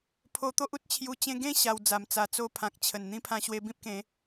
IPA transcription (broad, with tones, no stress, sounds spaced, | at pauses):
pʰ o˧ t̪ o˦ ʔ u˦ t̚ t͡ɕʰ j u˧ t͡ɕ ẽ˧ ɡ ẽ˥˧ ɕ a˧ w d͡z a˨˩ m t͡s a˧ t͡s o˦ pʰ ã˨ k̚ t͡ɕʰ ə˨˩ n n̪ ĩ˦ pʰ ã˧ ɕ w e˧ b ĩ˦ p̚ k ẽ˨˦